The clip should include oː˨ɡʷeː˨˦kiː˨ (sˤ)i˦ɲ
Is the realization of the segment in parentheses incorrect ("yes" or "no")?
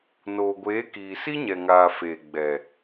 yes